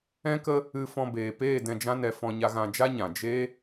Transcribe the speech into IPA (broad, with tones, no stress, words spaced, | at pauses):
ɛ̃˦kə˦ | ɨ˧ fɔ̃˧beː˨peː˦˨ dɛ̃˧d͡ʒã˦nɛ˧fɔ̃˧ ɲa˧ɣã˧d͡ʒa˦ɲã˨ d͡ʒe˦